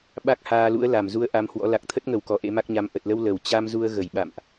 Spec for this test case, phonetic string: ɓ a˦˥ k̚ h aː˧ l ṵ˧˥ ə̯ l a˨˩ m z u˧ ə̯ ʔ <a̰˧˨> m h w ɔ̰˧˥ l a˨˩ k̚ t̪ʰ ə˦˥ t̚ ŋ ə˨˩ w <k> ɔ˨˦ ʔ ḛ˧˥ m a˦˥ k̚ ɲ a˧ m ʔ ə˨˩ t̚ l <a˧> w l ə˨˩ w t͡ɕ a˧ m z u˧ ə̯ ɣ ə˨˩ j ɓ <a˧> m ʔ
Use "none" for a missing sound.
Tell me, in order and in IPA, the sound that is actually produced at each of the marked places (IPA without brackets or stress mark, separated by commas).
a˧, k, ə˧, a̰˧˨